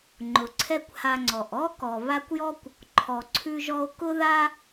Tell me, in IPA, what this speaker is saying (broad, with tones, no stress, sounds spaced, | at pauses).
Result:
ŋ͡ǃ ʊ˨ ǀʰ ɛ˦ kʷ h a˧ ŋ͡ǀ ɔ˨ ʔ ɔ˦ k ɔ˨ β a˧ kʷ j ɔ˦ kʷ | ǃʰ ɔ˨ ǀʰ ʉ˧ ʒ ɔ˧ o̯ k ʊ˦ ð a˦